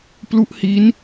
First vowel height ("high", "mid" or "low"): high